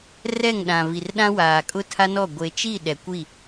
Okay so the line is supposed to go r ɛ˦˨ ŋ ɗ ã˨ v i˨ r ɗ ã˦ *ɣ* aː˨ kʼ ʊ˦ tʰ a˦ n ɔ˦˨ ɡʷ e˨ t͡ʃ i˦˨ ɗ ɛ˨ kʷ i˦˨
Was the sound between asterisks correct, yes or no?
no